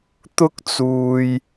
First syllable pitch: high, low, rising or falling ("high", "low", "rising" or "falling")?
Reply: high